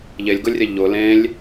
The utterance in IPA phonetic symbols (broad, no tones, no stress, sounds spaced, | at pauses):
ʎ e lʲ ɡ ʊ lʲ rʲ ɛ ʎ ʊ l ẽ lʲ